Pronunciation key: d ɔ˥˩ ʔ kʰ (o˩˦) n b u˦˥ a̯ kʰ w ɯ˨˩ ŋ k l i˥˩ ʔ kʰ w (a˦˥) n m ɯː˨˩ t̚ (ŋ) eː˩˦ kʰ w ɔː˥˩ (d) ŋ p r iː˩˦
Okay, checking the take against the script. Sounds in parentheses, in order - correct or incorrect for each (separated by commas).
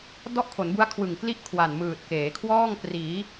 correct, incorrect, incorrect, incorrect